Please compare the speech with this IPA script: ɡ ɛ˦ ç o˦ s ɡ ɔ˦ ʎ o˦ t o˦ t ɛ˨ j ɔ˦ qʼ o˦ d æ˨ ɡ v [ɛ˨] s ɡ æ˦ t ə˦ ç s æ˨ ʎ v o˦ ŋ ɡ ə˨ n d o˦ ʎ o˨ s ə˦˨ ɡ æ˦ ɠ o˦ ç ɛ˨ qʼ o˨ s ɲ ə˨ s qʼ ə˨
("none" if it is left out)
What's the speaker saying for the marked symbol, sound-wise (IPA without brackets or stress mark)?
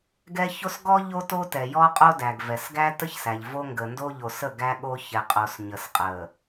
ɛ˨